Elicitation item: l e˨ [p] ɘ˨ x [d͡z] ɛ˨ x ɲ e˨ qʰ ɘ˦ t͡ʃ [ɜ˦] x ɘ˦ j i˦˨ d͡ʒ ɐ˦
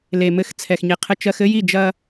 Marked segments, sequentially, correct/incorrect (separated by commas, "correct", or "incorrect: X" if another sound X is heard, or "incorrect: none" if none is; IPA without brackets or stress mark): incorrect: m, incorrect: t͡sʰ, correct